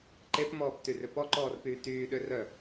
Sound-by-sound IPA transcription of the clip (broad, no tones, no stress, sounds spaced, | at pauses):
ǃ e p m ɔː p t y r ʏ p ɔ ǃ ɔː r p yː t yː ɗ ʏ r œ